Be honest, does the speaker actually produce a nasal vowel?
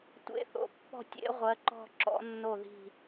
no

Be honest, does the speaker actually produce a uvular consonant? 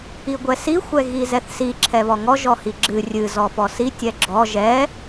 no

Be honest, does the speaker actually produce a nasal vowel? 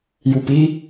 no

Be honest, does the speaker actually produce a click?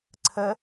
yes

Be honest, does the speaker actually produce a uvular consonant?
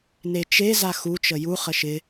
yes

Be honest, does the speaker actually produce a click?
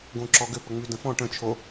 yes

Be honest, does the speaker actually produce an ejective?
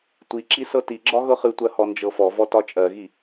yes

